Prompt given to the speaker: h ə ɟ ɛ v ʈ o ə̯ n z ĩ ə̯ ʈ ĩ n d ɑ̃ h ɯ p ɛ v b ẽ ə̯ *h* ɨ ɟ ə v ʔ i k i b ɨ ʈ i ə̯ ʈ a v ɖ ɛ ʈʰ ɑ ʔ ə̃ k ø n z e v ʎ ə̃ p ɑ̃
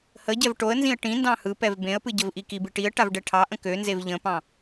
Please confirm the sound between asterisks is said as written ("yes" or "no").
no